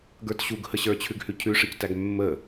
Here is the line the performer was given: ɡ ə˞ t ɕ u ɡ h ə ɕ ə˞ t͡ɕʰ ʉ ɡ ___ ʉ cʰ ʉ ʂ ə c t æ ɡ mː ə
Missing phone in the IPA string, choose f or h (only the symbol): h